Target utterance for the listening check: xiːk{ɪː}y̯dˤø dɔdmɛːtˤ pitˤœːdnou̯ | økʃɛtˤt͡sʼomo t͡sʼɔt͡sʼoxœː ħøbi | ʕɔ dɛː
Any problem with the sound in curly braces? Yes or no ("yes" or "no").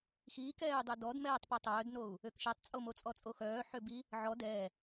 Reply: yes